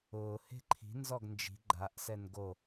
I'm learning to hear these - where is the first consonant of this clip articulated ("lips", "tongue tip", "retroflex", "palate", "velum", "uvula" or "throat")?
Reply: throat